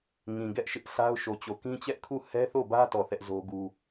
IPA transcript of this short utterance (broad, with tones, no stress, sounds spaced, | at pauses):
ŋ ĩ˨ ɡ ɛ˦ ʔ ʃ ɪ˦ ʔ sʰ a˦ ʊ̯ ʃ o˨ t͡ɕ o˨ k ĩ˦ t͡ɕ ɛ˦ ʔ kʰ u˦˨ h ɛ˦ θ o˦˨ b ä˦ t ɔ˦˨ θ ɛ˦ ʔ z o˦ ɡ u˦